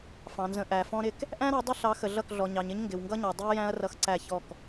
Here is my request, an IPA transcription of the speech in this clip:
fɑ̃˨nzə̃˨ ʔæ˨ fɔ̃˦ɾɪ˦k | ʔæ̃˦ɾɔ˨˦ dˤɪ˦ɬɑ˨˦ xə˨ɮʌ˦˨kɮɔ˨ ɲɑ˨ɲɪ˦ɲ ŋɡɪ˨wŋɡʌ˦ɲɑ˨ dˤɪ˦ɐ̯jæ̃˦ɐ̯ rʌ˦xǀæ˦˨çɔ˦˨k

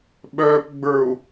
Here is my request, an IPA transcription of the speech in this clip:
ɓœːpɡ͡bə˞u̯

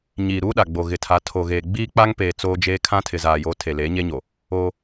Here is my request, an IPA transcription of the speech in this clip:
ɲiː˨ɾuː˦ɗa˨ɡ͡bo˨ ɣɪ˨tʰa˨˦ tʰo˨ɣeː˨ ɡ͡biː˦k͡pa˦ŋpeː˨ t͡soː˦d͡ʒeː˦ kʰã˦tʰɪ˨zaː˨jo˨˦ tʰe˨leː˨˦ɲe˦ɲo˨ | oː˦

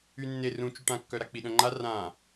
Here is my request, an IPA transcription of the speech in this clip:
ynːe rũ t͡ʃyʈãkːœ ɾak͡piɗœ̃ŋ͡ǃa rã

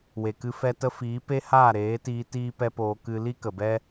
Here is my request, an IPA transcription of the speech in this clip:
we˨kɨ˧ fɛ˧tə˧fiː˨˦ pe˦haː˦˨ ɾeː˨˦tiː˧ tiː˦pɛ˦poː˧ kɨ˧ li˦kə˨bɛ˦

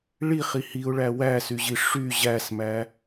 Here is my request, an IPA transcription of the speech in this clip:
ɭiχi hiʊ̯ɭæ wæsyʑi ʂy ʑæsmæ

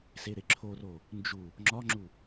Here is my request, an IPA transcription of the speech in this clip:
seɾeǁʰoro | nd͡ʒu | ŋ͡ǁɒŋ͡ǁu

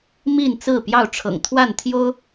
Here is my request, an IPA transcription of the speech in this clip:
mi˥˨nt͡sɹ̩˥˨pjɑ˥˨ʊ̯ ʈ͡ʂʰɤ̰˨˩ŋt̪ʰwa˥˨nt̪ʰjo˦ʊ̯

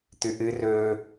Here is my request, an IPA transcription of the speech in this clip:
t̪ʉʔɨ rɵ

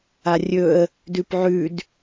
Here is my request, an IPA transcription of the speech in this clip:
arʲɵə̯ | dʉpʕʉd

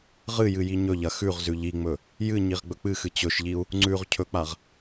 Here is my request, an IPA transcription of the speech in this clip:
ʁɨjɨ jiɲɵʎɐ xʉʁzʉ ʎiŋ͡mɵ | jɨɲiʁ ɡ͡bɵk͡pɨxɨ t͡ɕɵʃʎiu̯ | ŋ͡ǀʉʁ cʰɵk͡paʁ

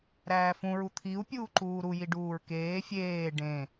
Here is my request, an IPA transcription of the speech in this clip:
ɾæːfũɹu t̪ʰiu̯pʲuː ǃuːɾujiɖuːɹ keː fʲeː ɖẽ

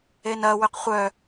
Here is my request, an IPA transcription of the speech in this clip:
enɐ wʏqχʷœ

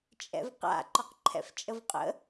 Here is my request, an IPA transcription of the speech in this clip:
t͡ʃʼɛ̰vqa̰ ǃɒqǃʰɛ̰ft͡ʃʼəvqʼə̰

